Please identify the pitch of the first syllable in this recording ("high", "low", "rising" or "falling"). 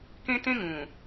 high